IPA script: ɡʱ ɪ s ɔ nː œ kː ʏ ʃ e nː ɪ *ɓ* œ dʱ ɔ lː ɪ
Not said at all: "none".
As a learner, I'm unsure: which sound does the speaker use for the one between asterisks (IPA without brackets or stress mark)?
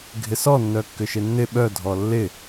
ɓ